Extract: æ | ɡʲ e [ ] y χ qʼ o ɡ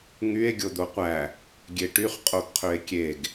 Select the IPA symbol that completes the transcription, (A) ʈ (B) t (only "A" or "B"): A